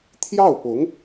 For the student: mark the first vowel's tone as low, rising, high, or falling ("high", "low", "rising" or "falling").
falling